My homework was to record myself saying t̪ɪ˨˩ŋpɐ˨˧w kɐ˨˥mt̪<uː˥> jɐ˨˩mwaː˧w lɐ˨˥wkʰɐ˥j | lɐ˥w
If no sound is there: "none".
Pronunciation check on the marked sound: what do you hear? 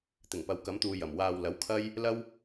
uː˨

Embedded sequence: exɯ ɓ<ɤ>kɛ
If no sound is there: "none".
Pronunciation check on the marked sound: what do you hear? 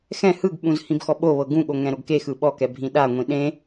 ɔ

